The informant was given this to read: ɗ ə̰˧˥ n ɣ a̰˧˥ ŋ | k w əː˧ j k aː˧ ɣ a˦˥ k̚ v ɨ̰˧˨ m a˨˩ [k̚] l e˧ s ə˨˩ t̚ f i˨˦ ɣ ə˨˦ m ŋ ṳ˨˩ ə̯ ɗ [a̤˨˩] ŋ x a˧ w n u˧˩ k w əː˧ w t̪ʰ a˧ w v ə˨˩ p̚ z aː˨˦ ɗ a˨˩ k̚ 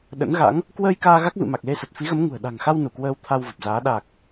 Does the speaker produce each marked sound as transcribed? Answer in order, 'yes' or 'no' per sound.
yes, yes

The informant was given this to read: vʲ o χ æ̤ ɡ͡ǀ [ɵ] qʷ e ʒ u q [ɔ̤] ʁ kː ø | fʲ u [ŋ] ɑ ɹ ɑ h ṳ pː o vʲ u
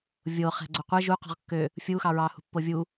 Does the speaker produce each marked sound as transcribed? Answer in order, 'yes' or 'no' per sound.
yes, yes, no

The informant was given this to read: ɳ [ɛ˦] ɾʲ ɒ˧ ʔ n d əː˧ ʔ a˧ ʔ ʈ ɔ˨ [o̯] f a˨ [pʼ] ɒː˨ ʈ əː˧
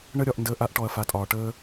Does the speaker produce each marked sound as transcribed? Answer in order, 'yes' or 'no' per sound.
no, no, no

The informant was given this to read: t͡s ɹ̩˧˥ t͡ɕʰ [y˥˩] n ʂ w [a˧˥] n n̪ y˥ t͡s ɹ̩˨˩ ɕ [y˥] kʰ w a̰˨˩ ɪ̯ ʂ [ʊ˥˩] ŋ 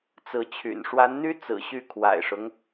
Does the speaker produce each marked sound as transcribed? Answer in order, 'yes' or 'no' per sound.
no, yes, no, no

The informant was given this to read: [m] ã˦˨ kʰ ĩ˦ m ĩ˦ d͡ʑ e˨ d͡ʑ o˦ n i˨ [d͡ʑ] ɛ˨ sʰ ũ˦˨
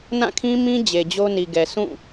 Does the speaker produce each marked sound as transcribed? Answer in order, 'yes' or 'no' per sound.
no, no

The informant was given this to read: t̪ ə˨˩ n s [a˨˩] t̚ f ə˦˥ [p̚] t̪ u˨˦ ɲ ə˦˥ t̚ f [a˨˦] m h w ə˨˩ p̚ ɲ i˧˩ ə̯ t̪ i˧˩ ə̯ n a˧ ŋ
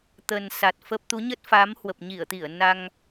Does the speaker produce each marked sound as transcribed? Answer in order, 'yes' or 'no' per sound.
yes, yes, yes

